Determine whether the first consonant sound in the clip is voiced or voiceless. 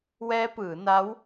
voiced